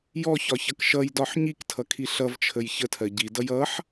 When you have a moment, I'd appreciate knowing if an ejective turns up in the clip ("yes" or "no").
no